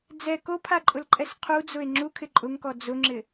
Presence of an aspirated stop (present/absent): present